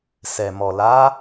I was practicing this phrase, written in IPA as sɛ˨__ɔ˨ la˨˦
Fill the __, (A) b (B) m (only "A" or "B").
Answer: B